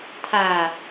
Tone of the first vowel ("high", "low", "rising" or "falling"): low